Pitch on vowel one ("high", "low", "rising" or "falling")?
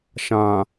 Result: low